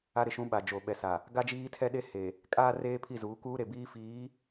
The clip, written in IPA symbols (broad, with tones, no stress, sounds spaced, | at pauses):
a˦ ɾ ɪ˨ ʃ ũ˦ ɓ a˨ d͡ʒ o˨ ɓ ɛ˨ s a˨ | ɡ a˦ d͡ʒ iː˦ tʰ ɛ˦ ɗ e˦ h e˨ | kʼ aː˦ r eː˦ pʰ i˦˨ z uː˨˦ k uː˦ ɾ e˨ b iː˦ f iː˨˦